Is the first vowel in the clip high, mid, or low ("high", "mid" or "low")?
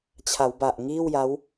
low